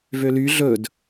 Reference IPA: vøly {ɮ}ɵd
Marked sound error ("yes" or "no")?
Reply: no